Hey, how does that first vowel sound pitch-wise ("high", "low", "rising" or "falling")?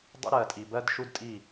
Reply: high